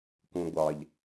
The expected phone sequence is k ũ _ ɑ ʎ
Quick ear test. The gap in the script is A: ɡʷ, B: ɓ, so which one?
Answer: A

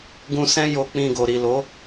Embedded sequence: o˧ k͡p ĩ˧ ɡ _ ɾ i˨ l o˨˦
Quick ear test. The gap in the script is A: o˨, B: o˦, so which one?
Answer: A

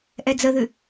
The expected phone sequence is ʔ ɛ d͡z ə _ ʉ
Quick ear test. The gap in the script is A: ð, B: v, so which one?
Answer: A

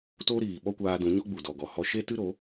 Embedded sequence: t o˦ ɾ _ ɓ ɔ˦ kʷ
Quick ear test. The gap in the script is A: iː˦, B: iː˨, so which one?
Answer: B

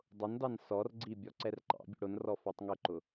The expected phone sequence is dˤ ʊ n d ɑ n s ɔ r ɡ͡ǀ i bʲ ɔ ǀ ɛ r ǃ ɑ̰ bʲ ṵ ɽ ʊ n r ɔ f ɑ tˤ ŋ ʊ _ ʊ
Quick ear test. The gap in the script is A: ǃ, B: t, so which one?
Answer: A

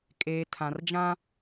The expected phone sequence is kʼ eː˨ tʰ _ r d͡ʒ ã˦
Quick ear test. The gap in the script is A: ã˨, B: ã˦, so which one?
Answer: A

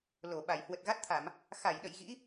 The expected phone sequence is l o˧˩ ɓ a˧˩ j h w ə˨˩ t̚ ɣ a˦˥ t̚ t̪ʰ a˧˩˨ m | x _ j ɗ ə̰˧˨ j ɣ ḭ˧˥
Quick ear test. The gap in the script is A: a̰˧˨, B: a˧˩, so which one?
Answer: B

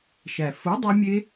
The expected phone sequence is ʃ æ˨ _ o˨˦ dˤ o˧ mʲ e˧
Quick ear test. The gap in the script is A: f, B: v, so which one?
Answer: A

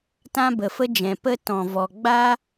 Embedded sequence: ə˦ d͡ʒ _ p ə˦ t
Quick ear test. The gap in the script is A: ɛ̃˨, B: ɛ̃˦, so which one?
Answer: A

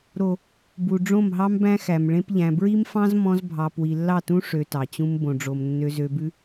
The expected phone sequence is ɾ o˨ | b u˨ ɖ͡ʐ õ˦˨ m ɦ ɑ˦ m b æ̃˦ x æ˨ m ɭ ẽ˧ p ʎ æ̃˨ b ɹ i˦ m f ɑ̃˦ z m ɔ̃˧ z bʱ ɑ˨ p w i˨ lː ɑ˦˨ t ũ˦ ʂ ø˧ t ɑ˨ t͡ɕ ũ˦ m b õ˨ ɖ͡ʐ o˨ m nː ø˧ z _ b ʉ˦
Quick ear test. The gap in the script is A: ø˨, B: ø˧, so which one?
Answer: B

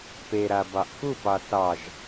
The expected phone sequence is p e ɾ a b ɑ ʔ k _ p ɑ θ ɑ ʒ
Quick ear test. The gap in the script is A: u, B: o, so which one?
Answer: A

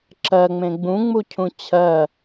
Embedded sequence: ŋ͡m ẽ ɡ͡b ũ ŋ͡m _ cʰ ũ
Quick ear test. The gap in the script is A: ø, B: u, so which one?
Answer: B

